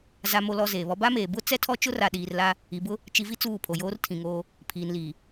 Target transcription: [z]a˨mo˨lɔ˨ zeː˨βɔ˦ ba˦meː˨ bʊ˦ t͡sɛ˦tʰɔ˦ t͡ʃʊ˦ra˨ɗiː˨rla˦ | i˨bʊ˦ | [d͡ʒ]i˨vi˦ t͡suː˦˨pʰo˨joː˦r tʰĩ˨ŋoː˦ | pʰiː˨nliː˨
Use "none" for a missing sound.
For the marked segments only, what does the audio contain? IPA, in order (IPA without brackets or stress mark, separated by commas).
z, t͡ʃ